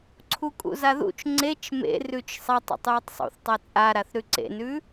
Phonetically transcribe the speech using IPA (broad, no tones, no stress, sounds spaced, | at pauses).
ǀʰ u kʼ ṵ z a ð ṵ t͡ʃ ŋ͡ǀ e t͡ʃ m ḛ r ʉ t͡ʃ sˤ a tˤ ṵ tˤ j ʉ tˤ sˤ ṵ θ tˤ a t͡sʼ a ɾ a θ ɾ ʉ ǀ ḛ n ʉ